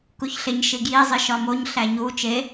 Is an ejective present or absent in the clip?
absent